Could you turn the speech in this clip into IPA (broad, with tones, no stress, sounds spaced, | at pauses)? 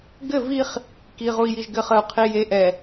ɡ ɘ˦˨ v i˦ χ | k i˨ ʁ u˨ i̯ j i˨ ʒ ɡ ɘ˨ χ ə˨ u̯ qʰ i˨ j e˨ ʔ ɛ˨